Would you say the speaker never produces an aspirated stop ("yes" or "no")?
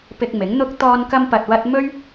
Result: yes